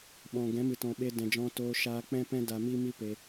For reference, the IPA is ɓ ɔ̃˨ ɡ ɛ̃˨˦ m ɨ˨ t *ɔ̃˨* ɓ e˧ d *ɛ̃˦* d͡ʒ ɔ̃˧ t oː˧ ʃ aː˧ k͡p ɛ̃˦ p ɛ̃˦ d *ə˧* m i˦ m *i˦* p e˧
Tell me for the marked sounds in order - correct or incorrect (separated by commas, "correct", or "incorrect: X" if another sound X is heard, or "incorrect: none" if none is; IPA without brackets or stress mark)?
correct, incorrect: ɛ̃˨, incorrect: a˧, correct